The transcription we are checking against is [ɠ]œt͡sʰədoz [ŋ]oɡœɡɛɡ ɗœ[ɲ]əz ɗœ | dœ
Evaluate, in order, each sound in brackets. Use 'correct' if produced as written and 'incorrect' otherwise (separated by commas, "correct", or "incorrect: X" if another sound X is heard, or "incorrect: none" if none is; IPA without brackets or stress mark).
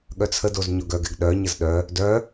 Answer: correct, incorrect: ɲ, correct